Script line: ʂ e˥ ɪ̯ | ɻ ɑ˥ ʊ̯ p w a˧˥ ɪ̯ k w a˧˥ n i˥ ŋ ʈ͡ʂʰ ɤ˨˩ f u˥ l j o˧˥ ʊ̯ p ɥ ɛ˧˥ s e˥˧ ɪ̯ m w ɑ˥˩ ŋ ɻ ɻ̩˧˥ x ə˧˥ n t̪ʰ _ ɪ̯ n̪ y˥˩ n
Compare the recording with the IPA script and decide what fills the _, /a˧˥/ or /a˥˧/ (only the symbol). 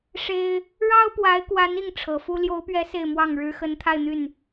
a˥˧